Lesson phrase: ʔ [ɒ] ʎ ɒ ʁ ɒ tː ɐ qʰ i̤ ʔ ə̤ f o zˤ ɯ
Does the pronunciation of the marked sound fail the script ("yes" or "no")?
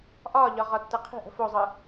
no